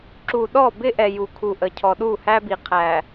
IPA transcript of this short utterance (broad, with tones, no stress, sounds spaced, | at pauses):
ǁ u˨ ɗ ɔ˦˨ b ɪ˦ ʔ ɛ˨ j u˨ kʰ u˨ ʔ ə˨ cʰ ɔ˨ ɗ u˦˨ h æ˦ b i˨ qʰ æ˨